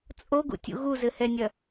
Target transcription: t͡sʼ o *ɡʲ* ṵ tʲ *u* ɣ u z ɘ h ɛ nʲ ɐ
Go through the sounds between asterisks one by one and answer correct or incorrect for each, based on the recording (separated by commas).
incorrect, incorrect